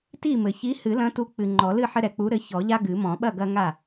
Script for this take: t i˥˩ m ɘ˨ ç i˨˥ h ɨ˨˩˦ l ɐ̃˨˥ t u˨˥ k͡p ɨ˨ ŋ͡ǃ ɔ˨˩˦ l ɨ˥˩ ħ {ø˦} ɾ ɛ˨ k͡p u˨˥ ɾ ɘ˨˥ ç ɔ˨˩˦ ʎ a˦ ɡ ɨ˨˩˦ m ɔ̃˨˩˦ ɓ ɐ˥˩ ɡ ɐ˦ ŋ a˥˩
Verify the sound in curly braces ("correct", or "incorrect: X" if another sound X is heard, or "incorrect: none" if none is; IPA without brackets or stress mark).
incorrect: ɘ˦